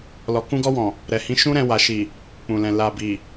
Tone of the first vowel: low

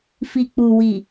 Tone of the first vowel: low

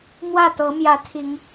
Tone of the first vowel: falling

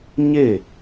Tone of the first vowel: falling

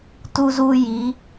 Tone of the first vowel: high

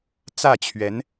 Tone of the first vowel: falling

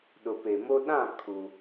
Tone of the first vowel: low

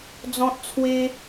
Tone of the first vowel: high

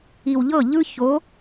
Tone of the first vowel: low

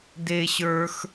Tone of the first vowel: high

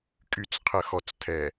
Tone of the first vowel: low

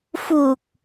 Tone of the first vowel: low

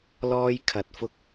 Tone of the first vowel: high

